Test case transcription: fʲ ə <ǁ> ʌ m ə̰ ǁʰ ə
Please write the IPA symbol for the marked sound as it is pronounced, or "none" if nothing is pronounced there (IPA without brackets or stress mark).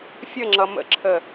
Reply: ŋ͡ǁ